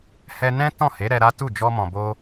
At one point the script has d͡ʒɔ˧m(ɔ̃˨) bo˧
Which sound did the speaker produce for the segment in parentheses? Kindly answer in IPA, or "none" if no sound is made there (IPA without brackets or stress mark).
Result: ɔ̃˨